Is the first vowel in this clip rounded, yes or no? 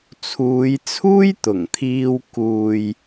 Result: yes